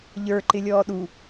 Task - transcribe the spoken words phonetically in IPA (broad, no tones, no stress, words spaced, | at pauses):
ʎə˞ ǃɪlʲɔːɗu